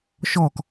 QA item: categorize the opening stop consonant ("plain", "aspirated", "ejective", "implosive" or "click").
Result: plain